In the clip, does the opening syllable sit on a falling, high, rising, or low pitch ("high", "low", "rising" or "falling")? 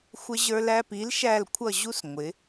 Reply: high